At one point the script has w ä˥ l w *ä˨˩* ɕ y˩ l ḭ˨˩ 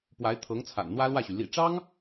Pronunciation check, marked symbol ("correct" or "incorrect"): incorrect